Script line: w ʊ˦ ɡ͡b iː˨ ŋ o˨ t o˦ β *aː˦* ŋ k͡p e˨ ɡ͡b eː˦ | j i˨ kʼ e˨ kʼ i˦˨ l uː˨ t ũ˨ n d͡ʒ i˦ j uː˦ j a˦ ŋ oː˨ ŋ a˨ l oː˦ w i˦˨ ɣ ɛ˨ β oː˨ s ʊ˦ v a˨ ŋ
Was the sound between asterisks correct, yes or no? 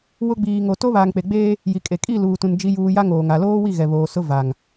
no